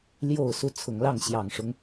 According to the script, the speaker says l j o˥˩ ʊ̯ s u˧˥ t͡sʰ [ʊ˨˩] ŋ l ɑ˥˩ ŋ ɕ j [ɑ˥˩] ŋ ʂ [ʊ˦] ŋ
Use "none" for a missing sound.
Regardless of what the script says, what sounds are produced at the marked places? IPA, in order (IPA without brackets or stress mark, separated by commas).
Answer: ʊ˨˩, ɑ˨˩, ʊ˦